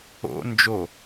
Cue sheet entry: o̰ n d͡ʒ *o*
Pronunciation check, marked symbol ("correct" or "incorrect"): correct